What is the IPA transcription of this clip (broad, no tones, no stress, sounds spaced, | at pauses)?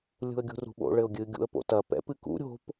lʲ ṳ ə̯ ɡʲ ṳ r ṳ ɓ o̰ ɭ ɘ ʊ̯ ɡʲ ɨ ɡʲ ṵ ə̯ p o̰ t ɐ p ɛ̰ p ɨ k ṵ ɾʲ o̤ p